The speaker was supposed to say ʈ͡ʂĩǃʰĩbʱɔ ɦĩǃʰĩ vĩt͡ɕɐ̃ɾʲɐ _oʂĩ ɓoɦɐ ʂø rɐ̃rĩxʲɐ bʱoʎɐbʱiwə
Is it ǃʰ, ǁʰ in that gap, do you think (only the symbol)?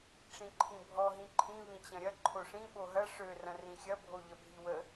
ǃʰ